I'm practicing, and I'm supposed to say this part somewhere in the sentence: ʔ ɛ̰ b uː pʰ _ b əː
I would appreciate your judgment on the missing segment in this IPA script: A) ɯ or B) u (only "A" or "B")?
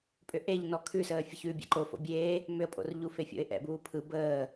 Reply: A